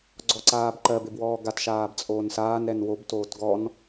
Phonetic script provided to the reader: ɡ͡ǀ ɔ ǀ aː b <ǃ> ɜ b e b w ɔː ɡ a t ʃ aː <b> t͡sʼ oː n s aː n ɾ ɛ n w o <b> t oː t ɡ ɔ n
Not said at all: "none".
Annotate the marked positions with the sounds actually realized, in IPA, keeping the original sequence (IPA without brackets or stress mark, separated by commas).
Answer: ǃ, b, b